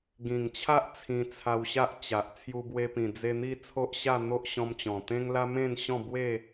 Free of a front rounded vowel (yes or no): yes